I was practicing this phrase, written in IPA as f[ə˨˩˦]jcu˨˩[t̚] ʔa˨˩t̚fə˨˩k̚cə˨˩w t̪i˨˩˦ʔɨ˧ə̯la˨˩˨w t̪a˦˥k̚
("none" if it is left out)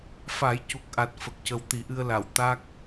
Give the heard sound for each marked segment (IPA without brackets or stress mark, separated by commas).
a˨˩˦, k̚